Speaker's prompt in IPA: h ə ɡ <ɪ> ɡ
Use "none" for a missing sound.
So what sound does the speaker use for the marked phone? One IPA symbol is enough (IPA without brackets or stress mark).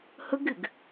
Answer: ɪ